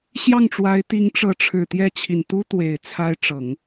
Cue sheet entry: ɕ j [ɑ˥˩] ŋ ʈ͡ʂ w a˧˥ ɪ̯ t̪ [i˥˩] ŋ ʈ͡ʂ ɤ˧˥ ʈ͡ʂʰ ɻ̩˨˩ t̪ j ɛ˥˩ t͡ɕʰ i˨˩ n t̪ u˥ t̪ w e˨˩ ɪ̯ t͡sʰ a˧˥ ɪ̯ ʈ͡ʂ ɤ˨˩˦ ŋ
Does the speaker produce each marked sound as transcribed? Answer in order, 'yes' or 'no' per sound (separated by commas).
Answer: yes, no